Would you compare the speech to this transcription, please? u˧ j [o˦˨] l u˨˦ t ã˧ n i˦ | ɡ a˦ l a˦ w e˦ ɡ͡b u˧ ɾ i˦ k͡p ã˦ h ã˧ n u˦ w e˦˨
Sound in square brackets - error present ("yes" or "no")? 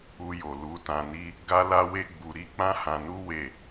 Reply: yes